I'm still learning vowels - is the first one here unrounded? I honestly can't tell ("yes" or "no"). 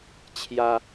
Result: yes